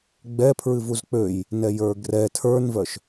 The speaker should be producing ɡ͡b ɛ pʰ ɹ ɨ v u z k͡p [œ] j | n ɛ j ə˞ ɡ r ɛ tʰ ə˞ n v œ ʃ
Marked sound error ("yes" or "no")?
yes